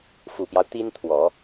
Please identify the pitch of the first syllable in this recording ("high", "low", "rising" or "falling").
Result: low